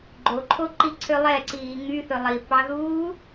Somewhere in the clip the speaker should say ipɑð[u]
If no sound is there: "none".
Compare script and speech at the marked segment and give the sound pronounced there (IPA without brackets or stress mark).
uː